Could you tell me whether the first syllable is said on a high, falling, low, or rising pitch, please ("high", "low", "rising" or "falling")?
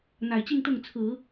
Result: low